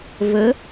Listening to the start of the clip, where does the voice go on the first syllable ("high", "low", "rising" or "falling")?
rising